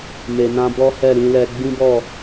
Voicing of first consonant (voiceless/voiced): voiced